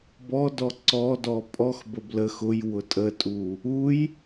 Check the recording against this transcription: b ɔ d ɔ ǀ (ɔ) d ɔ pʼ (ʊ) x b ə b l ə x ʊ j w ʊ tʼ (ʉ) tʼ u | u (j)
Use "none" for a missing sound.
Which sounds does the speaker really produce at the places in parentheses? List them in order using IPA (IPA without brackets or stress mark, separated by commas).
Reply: ɔ, ɔ, ə, j